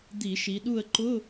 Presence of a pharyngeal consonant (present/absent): absent